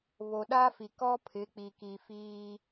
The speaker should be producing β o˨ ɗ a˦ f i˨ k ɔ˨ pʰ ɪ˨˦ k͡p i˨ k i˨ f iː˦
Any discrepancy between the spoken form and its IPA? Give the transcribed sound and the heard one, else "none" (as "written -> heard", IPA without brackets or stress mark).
ɔ˨ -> ɔ˦